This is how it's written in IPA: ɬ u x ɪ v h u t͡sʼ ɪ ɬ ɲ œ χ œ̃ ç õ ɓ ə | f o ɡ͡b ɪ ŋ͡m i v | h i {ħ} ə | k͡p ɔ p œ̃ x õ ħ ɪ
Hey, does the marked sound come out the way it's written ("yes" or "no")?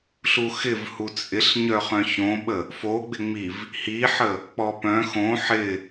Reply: yes